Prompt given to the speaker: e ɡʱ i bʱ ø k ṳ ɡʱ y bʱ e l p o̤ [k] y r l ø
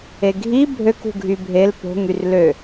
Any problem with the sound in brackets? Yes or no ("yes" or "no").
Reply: yes